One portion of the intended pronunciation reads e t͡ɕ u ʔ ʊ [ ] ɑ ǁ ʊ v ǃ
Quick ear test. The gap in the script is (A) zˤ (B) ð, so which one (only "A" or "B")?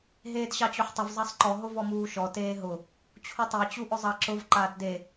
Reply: A